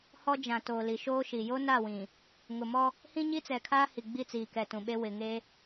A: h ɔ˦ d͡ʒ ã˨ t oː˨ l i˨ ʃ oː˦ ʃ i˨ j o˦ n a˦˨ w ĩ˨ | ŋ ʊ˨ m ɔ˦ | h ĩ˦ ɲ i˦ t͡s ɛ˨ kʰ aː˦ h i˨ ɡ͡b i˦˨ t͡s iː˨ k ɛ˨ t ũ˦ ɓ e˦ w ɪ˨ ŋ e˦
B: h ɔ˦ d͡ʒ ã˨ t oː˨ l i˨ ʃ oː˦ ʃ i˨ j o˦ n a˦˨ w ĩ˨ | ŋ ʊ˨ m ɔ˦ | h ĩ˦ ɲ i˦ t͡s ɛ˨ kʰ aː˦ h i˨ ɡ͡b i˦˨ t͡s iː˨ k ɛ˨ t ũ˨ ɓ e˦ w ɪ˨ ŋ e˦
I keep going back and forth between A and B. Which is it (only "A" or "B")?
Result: B